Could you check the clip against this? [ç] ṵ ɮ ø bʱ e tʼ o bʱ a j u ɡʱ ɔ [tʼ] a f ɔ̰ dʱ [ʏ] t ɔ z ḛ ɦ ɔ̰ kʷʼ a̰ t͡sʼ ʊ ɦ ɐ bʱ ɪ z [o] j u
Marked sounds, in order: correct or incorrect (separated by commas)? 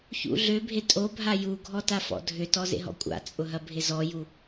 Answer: correct, incorrect, correct, incorrect